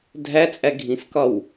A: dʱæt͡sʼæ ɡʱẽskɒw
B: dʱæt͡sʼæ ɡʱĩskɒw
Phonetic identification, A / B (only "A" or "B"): B